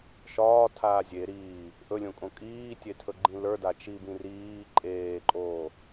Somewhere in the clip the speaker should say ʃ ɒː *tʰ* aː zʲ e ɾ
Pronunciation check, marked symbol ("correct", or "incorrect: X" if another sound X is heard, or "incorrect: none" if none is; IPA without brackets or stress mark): correct